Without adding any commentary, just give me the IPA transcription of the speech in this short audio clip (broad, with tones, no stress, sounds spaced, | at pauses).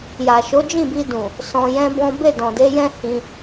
j a˨ ʃ o˨˦ d͡ʒ ĩ˦˨ b i˧ d ũ˨ | s ɔ̃˧ j ɛ̃˦ b ɔ̃˦ b e˦˨ d ɔ̃˨ d e˨˦ j ɛ̃˦ h ĩ˧